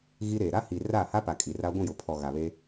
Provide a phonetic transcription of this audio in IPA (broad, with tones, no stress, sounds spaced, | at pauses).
ɣ i˦ ɾ eː˨ ɾ a˦ h i˨ r a˦˨ h a˦ p a˨ kʼ i˨ r a˦ ɡʷ ĩ˦˨ j ʊ˨ pʰ ɔ˨ ɣ a˨ β e˦